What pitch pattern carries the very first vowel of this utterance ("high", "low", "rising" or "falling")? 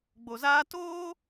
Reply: low